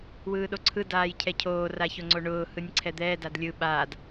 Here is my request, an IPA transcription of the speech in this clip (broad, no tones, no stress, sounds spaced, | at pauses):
w ɯː ɗ o ǀʰ ɯ d aː j cʰ ɛ cʰ oː r a ç o ŋ͡ǀ o ɳ ʊː h ɯ nʲ ǀʰ ɛ d̪ ɛː d a d lʲ ɯ ɓ aː d